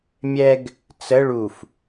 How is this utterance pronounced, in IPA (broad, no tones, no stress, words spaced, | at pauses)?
mʲɛɡ | t͡sə ɭuf